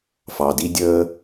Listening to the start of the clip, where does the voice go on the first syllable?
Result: low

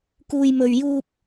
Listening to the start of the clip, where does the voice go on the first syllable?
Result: high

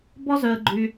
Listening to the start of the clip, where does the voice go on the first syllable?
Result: high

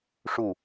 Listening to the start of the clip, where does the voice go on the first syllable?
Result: falling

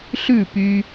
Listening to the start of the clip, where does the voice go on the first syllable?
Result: falling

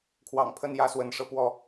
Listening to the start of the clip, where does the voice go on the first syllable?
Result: low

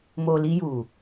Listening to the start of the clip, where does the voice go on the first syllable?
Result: low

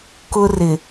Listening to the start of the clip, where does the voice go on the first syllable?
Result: high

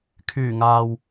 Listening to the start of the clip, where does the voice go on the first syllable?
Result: low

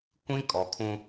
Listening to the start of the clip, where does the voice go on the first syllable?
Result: high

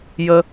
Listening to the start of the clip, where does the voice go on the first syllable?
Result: high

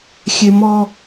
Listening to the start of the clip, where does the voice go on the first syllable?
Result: high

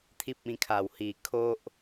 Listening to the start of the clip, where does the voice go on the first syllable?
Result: high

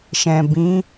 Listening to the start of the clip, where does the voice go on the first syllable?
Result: low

